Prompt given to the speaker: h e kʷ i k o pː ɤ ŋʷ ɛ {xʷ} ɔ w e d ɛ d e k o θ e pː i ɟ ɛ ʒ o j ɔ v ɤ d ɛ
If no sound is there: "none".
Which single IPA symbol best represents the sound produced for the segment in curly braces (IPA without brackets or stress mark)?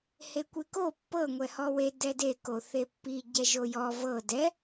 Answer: h